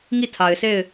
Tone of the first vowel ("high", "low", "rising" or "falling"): falling